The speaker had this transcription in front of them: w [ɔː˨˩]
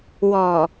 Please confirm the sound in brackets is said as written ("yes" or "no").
yes